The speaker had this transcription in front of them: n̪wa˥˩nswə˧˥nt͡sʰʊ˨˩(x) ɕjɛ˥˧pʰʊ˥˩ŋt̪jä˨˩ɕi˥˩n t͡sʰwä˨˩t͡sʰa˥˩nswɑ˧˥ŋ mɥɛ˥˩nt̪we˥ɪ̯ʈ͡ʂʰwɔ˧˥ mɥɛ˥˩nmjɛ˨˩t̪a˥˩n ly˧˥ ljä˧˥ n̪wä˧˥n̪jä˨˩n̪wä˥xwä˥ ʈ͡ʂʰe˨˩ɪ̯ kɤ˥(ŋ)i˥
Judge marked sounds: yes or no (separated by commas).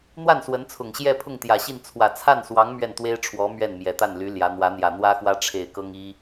no, yes